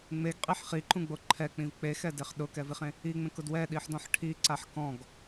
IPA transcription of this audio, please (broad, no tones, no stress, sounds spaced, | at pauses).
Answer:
ŋ͡m e ɡ qʼ i ħ χ i ǃ ũ ɡ͡b o ǃʰ ɛ k͡p ĩ v k͡p e x ɛ d e χ ɗ ʊ k ɛ v i χ ẽ | i ŋ͡m ẽ k ʊ d w ɛ ɗ i ħ d ɔ̃ ħ ʈʰ i ǀ a ħ k ɔ̃ ɡ